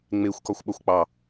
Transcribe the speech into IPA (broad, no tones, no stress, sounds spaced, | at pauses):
ŋ͡m e xʷ k ɒ xʷ ɓ ʌ xʷ k͡p ɑ